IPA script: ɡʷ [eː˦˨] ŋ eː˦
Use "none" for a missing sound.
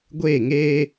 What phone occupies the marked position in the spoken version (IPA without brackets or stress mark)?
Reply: eː˦˨